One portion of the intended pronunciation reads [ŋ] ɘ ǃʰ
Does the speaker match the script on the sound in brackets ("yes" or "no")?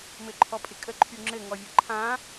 no